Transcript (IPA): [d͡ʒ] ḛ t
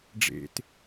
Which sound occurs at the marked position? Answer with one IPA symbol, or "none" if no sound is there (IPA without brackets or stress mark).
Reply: ɖ͡ʐ